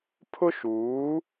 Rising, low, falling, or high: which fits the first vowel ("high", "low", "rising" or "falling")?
high